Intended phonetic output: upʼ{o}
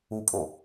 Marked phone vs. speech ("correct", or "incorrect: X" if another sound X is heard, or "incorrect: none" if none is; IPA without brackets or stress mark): correct